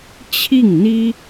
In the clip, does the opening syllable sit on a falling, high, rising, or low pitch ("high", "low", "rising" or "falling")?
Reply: falling